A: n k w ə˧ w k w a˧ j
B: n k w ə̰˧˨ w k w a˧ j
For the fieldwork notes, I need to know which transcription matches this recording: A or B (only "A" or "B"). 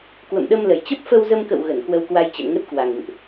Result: A